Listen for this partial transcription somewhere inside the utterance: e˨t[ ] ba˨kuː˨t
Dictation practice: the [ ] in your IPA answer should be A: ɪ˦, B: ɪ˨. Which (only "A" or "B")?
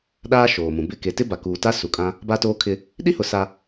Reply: A